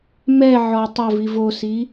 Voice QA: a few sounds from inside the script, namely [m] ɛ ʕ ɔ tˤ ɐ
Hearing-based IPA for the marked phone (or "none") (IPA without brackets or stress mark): m